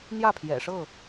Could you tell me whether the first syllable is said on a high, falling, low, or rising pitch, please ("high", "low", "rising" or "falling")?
falling